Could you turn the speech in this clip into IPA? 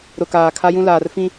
ɾʊ˨kaː˨ kʰa˦jũ˦ laː˨rfĩ˦

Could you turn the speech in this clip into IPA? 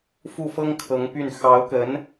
fu˥˩fɤ˥ŋkʰɤ˧˥ŋ py˥˩n xɑ˧˥ʊ̯kə˧˥n

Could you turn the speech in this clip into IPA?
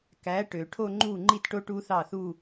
kæ˩˥ ʈø˨˩˦ ʈʰo˥˧ŋ͡ǃu˥˩ ŋ͡ǃi˥˩tʈo˦˥ ʈu˦˥θɑ˥˩θu˥˧

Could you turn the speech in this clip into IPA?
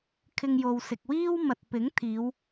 kʰɪ˧ŋjo˨wsɪ˨k̚ wiː˥wmɐ˨t̚pɪ˨˥ŋ t̪ʰiː˨˧w

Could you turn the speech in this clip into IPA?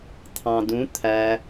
t̪ʰɑ̃dũ t̪ʰæ

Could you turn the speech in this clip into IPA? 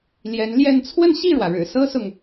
ljɛ˧˥nljɛ˥˧n t͡sʰwə˥˧nɕi˥˩ɻwä˩ɻɻ̩˨˩ sɤ˥sʊ˨ŋ

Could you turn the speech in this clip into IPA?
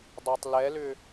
dˤatˤlɛlʏ

